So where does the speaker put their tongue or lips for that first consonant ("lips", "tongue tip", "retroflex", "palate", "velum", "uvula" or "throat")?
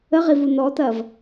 uvula